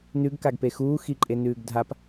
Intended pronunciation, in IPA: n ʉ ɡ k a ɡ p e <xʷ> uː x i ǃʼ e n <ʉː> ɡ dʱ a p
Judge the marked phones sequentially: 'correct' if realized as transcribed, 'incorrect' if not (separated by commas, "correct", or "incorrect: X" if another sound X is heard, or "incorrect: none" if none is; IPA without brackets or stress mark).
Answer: incorrect: x, correct